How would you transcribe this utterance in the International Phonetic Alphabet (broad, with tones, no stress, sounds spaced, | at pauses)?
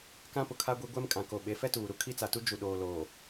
k ã˦ p ʊ˨ kʰ a˦ ɡʷ i˦ ɡʷ ɛ˦ m kʼ ã˨ k o˨ ɓ e˨˦ f ɛ˦ t uː˨ ɾ u˦ kʰ i˦ t͡s a˨ t u˦ d͡ʒ u˨ ɗ oː˨ l oː˨